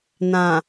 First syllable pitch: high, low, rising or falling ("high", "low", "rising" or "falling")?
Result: low